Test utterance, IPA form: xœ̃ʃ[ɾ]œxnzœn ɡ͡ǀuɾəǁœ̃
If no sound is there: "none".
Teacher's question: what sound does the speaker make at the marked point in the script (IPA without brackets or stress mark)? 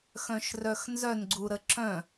r